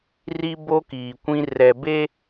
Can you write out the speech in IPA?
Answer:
r i˦ b o˦ k iː˨ kʷ ĩ˦ r ɛ˨ b e˦

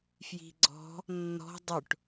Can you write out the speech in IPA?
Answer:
f j i̤ ɡ͡ǀ ɔ̤ | nː ɔ̤ dˤ ʊ ʈ

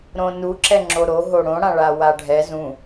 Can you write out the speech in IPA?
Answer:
ɾ õ n u ǁ ɛ ŋ͡ǁ o ɾ o ɦ o ɽ õ ɽ ã ɭ a w a ɖʱ ɛ z ũ

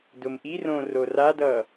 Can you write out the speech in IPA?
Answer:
d ʊ m ʔ i r õ r o r a d ʌ

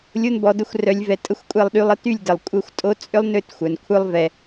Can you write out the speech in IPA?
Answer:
lʲ o˧ n b ɔ˨ d ə˧ xʷ r œ˨ lʲ v ɛ˨ tʼ ə˦ xʷ kʷʼ ɛ˦˨ lˠ ɗ y˧ lˠ ə˧ t y˦˨ lʲ d ə˨ lˠ kʷʼ ə˦˨ xʷ tʼ o˦ t͡sʼ ʏ˦ lˠ n ʏ˦˨ t xʷ œ˨ n kʷʰ œ˦ lˠ v ɛ˧

